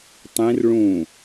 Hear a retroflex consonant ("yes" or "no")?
yes